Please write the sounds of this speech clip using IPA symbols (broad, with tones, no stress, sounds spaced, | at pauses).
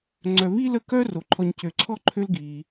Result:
ŋ͡ǀ œ˨ β i˥ l ə˦ k œ˥ r o˩ ǃʰ ɔ˨ ɲ c ø˨ ǀʰ ɔ˥ ǃʰ ø˦ l ɡ iː˩